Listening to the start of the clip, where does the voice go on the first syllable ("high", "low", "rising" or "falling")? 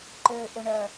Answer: low